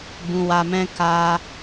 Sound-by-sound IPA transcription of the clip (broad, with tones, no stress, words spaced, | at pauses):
bũ˨wa˨mɛ̃˧ ka˧